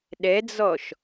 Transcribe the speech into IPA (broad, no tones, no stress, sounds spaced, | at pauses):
ɗ ɛ d͡z ɔ ʃ